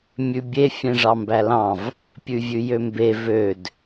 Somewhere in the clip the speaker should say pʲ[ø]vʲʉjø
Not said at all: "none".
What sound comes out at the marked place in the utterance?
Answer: ʉ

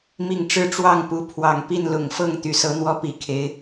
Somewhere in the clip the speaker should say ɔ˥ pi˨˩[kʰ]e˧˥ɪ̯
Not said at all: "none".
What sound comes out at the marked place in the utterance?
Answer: kʰ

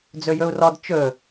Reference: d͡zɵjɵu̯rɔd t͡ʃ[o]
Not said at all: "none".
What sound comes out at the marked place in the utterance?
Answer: ɵ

